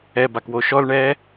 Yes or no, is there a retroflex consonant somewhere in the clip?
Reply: yes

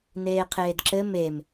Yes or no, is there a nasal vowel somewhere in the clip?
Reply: no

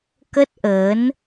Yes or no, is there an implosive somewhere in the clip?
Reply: no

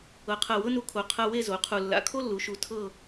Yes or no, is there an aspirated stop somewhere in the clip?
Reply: yes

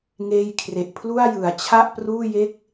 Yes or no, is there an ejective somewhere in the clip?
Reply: no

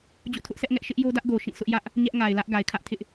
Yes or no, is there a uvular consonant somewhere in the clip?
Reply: no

